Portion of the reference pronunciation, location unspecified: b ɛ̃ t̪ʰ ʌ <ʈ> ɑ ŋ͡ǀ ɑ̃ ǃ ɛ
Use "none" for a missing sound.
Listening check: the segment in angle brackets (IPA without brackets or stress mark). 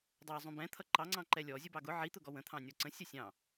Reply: ǃ